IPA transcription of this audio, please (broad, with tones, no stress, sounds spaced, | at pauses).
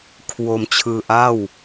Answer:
kʰ w o˧ m t͡ɕʰ ɯː˧ ʔ a˥˩ w